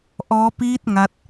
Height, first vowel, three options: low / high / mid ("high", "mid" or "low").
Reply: mid